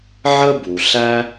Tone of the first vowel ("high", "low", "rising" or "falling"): high